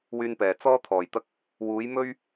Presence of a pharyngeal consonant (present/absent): absent